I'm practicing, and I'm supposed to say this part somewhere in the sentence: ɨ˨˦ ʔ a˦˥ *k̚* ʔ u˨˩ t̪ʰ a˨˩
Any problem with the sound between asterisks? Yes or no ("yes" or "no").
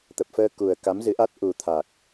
yes